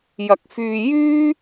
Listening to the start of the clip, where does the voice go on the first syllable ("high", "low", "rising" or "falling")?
low